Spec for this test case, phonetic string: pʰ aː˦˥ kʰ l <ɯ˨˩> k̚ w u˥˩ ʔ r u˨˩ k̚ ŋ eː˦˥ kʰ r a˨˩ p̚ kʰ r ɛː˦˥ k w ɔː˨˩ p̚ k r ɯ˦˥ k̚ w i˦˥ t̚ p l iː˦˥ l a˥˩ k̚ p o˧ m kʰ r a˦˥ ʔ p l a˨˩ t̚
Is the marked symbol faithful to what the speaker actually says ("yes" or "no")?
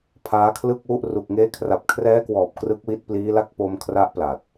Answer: no